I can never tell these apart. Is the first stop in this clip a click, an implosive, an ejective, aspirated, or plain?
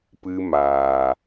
plain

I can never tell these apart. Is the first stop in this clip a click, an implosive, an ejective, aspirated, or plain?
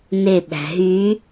implosive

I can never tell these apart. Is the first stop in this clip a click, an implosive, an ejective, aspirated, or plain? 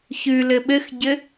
implosive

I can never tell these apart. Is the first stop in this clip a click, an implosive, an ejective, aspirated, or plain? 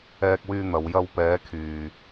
plain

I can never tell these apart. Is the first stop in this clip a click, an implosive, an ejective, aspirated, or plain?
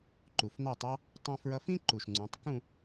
click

